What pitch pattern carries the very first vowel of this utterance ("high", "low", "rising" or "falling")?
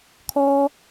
high